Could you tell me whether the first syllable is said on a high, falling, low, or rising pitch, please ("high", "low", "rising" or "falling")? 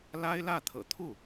high